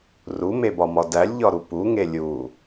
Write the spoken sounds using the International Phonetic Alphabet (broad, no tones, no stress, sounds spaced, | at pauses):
r u m e b ɒ m ɒ d æ lʲ ʎ ɒ ɾ u p u ŋ e lʲ u